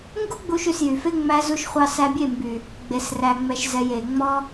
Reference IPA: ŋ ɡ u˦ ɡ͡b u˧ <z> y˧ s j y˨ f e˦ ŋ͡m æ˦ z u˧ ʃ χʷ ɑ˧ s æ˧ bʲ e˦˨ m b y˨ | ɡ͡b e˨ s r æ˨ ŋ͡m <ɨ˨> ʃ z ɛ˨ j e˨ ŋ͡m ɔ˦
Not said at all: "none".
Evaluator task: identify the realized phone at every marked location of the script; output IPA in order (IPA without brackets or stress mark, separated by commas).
ʃ, ɛ˨